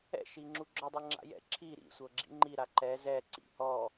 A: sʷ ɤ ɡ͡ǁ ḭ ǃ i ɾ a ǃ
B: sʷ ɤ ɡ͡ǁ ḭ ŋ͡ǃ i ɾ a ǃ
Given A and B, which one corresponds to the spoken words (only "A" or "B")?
B